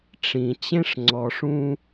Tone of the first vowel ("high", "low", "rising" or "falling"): low